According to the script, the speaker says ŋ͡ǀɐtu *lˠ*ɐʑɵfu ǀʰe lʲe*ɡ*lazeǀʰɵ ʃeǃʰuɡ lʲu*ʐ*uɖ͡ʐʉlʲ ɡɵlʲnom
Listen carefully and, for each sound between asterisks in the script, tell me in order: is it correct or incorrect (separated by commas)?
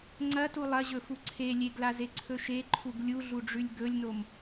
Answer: correct, correct, incorrect